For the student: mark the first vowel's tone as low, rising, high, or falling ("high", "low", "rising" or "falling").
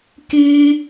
high